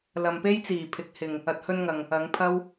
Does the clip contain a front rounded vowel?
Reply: no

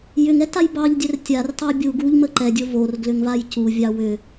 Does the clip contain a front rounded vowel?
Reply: yes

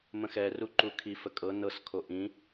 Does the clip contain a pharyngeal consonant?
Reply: no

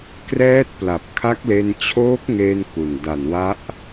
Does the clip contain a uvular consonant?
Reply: no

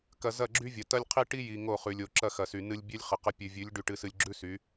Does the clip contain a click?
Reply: yes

